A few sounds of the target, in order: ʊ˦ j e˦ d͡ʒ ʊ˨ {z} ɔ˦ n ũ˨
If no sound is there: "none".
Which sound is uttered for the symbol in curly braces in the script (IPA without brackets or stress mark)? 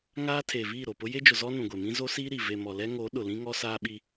z